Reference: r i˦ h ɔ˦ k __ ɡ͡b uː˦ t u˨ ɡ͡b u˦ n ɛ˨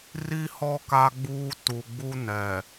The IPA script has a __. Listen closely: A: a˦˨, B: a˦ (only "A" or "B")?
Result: B